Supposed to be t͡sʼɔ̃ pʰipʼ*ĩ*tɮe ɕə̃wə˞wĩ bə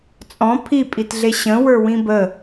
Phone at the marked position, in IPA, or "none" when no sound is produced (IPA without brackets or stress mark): i